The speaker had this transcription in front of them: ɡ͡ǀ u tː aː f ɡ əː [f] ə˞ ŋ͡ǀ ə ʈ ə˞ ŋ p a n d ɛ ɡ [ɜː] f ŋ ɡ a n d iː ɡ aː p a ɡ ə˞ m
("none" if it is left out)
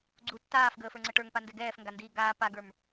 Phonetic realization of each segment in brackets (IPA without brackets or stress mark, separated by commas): f, ɛː